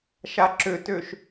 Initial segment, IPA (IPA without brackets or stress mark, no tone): ʃ